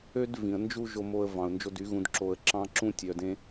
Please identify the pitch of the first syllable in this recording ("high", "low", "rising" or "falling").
high